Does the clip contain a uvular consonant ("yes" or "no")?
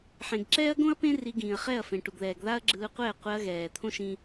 yes